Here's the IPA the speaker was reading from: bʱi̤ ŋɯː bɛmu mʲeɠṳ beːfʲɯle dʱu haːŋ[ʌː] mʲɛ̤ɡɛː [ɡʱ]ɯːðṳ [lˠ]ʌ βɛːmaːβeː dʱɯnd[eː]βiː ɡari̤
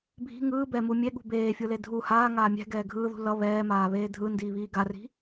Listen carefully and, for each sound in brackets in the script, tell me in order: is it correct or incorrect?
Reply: incorrect, correct, incorrect, incorrect

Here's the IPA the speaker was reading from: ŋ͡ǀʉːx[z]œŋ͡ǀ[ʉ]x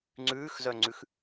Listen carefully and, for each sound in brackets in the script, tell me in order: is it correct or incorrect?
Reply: correct, correct

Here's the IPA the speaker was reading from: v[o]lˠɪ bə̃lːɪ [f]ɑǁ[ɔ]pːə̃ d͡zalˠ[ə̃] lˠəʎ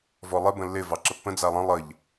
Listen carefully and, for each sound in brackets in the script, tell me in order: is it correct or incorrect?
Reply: incorrect, incorrect, incorrect, correct

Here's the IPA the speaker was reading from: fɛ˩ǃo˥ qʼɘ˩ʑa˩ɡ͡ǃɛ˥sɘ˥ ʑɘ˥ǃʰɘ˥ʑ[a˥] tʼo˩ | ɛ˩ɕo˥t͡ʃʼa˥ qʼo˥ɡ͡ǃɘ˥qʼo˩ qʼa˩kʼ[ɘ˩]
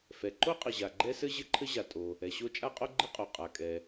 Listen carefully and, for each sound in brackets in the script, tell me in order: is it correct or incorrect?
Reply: incorrect, incorrect

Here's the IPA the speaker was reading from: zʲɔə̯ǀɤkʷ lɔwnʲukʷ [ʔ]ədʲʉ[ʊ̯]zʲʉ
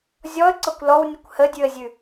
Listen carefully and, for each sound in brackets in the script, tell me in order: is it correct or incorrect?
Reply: incorrect, incorrect

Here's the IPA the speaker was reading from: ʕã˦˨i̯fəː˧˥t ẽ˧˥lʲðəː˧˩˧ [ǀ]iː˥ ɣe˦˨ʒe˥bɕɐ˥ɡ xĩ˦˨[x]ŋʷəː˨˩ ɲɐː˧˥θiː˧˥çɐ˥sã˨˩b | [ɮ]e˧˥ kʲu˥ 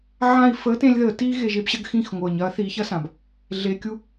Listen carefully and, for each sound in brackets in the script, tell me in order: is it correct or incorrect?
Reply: incorrect, correct, correct

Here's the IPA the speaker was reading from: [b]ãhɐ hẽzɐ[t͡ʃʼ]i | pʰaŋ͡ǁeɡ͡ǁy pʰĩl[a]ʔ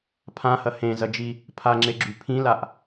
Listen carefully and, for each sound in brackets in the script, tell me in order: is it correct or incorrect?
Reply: incorrect, incorrect, correct

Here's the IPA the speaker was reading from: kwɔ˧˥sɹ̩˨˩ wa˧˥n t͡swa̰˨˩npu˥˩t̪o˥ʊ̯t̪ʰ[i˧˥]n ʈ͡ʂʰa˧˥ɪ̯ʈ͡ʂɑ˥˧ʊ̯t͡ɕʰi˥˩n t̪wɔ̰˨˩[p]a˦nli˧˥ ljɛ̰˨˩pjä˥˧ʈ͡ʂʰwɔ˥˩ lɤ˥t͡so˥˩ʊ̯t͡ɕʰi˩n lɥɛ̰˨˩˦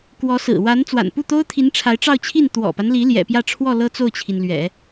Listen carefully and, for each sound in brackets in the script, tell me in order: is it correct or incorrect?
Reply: correct, correct

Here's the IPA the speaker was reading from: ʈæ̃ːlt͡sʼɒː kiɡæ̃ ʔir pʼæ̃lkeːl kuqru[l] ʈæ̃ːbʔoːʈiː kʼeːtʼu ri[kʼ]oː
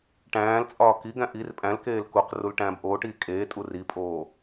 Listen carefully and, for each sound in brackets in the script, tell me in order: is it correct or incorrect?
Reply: correct, incorrect

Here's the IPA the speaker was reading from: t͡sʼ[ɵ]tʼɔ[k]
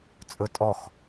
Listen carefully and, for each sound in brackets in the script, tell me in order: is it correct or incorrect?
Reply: correct, incorrect

